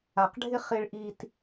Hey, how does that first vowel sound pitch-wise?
low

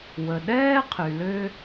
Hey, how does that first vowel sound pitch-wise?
low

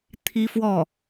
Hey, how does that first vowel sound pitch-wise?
high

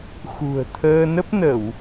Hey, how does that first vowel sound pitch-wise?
low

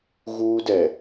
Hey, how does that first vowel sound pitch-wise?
high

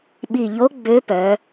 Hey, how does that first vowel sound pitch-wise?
falling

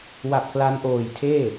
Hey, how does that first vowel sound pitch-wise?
low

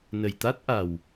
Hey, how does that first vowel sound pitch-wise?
low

